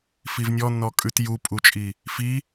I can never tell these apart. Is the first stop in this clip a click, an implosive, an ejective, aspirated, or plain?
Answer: ejective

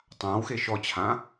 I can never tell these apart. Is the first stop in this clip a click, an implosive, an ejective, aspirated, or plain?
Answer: plain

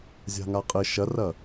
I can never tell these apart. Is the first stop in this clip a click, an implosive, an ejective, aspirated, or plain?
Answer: ejective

